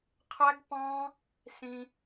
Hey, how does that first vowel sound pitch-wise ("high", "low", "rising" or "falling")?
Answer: high